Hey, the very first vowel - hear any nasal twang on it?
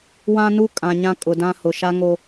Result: yes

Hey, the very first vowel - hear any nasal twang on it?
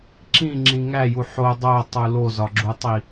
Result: yes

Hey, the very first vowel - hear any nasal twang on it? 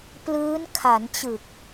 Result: no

